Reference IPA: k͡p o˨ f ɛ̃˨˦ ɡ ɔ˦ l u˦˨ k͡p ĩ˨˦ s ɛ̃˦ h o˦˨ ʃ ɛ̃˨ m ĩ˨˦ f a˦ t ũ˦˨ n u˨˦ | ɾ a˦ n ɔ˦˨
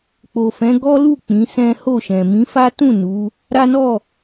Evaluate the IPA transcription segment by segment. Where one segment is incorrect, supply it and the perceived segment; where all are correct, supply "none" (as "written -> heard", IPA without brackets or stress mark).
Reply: none